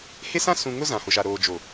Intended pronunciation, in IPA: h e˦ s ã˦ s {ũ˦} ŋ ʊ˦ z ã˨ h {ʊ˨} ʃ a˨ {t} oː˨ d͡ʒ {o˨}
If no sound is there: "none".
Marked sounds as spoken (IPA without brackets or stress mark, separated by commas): ũ˨, ʊ˨, ɾ, o˨